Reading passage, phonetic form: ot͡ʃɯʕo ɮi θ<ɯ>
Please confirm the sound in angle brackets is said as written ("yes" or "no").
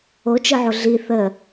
no